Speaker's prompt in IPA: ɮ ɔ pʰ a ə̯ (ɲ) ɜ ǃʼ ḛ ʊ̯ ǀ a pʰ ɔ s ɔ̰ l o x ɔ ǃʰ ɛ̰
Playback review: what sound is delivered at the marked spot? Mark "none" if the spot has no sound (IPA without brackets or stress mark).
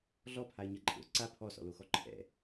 ɲ